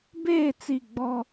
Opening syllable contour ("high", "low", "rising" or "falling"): falling